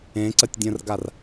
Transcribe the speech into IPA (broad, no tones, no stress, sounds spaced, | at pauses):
ẽ ǀ ə tʲ dʲ ə̃ r ɡ a r